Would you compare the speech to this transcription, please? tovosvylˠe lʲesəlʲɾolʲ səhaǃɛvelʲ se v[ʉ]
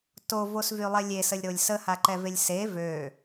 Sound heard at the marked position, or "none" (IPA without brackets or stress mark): ø